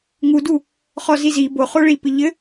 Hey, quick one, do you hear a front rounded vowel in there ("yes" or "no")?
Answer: no